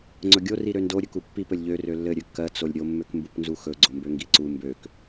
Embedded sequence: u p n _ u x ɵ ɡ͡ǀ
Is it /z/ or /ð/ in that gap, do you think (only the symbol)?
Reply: z